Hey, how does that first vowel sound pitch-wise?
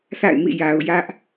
falling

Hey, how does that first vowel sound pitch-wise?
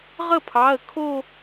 falling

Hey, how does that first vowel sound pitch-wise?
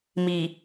low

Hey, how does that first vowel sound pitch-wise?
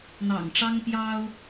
low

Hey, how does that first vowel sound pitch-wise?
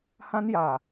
high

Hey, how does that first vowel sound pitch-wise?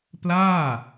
falling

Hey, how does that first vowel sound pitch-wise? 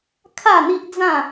falling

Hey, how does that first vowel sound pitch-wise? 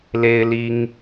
high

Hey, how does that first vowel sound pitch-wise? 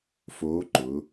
rising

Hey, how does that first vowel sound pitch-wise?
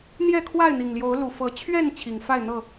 falling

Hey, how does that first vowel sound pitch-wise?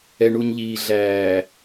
low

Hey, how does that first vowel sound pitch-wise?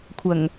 low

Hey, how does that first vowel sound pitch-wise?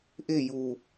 falling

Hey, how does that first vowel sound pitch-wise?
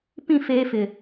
falling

